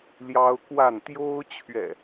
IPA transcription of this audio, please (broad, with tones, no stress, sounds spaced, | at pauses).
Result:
l j ɑ˦ ʊ̯ k w a˥˨ n t̪ j o˦ ʊ̯ t͡ɕʰ ɥ ɛ̰˨˩